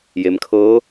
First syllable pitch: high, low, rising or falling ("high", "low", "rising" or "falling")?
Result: low